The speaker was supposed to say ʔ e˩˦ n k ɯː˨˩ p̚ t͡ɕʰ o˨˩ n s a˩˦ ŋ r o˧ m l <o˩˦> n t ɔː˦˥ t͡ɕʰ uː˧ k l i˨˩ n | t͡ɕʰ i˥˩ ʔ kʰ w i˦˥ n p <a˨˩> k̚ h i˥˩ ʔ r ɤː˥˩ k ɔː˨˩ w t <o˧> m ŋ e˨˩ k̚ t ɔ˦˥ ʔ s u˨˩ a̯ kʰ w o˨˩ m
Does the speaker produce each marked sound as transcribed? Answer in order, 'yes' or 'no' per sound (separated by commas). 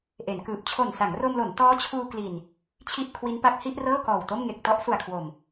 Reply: yes, no, no